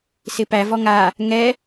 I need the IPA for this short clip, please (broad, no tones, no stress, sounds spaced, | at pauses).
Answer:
s ɪː p æ v ɔ ŋ aː | ŋ ɛː